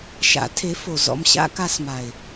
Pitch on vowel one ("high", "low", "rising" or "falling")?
rising